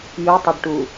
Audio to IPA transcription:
j u tˤ e ɖ ʈ u

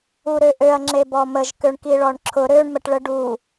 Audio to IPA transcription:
u ɾ ø ʔ ø ɐ̯ ŋ͡ǁ e b ɔ m ə ʒ k ø ɳ k i ɭ ɔ ɳ ǁʰ ʊ ɾ ø ɳ m ə ʈ ɭ ə ɖ u

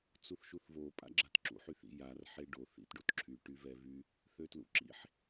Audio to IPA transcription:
t͡s u θ ʃ u θ v o pʼ a̰ ɡ͡ǁ a t ǁ ṵ ħ y θ ḭ j a r ħ e ɖ o θ ḭ t ɖ o t ǁʰ y ʈ y v ɛ v y | θ ø t l ṵ ǁ ḭ ħ

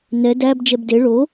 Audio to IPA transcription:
n ɛ d æ b d͡ʒ ɛ b d e ɭ o

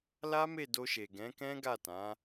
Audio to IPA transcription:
l a˦ m e˦˨ d o˧ ʃ e˨ ɡ ɛ̃˨˦ k ɛ̃˦ ɡ a˦˨ t ã˨˦

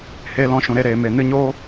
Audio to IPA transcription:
h eː˧ l ɔ̃˧ ʃ ũ˨ ɾ e˧ ɾ eː˨ m e˨ n ɨ˧ ɲ oː˦

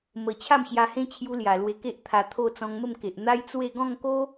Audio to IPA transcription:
m ə˧ t͡ɕʰ a˥˧ m ɕ j a˧ h ẽ˦ t͡ɕʰ j u˧ l j a˨˩ l w e˧ k e˦ ʔ t̪ʰ a˧ t̪ʰ o˥˧ t͡s ɔ̃˧ ŋ m ə˥˧ m k e˨ ʔ n̪ a˦ j t͡s w e˥˧ ɡ ɔ̃˥˧ ŋ k o˦

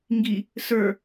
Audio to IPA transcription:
ŋ ɡ i | s ə˞

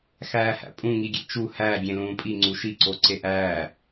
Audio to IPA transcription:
x æː h æ̰ pʼ ũ ŋ i ɡʲ ḛ t͡ʃ u h æ ɡʲ ẽ l ũː pʼ i ŋ͡ǀ u ʃ i ǀ o ǀ e ʔ æː

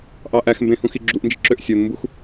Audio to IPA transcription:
ʔ ɑ ʔ æ x m b ẽ h ũ x i ɡ͡ǁ u ʔ n d͡ʒ ḭ ǁ ø ʔ sʲ o n m b u x

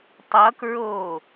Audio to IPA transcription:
tˤ ʌ k ɹ oː

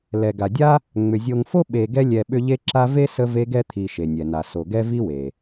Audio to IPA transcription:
l ɛ˩ ɡ a˩ dʲ a˥ | ŋ͡m ʏ˩ zʲ o˨ ŋ f o˥ ɓ e˨ ɡ ɛ˦ lʲ ɛ˨ ɓ ʏ˦ ʎ e˦ ǁ a˦ v e˥ s ə˦ v e˦ ɡ ɛ˥ t̪ʰ i˨ ʃ e˩ nʲ ɛ˩ n a˩ s o˩ ɡ ɛ˥ v i˥ w e˩

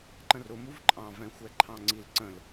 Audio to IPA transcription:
ǃ ə̃ r ʊ m u v ǃʼ ɑ̃ v ɛ̃ xʷ ɛ ǃʰ ɑ̃ ŋ͡ǀ i l ǀ ə̃ l

